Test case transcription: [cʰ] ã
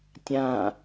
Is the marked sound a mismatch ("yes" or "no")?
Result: yes